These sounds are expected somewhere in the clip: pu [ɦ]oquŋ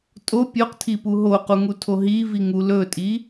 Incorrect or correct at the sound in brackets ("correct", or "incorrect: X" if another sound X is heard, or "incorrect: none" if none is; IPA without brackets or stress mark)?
correct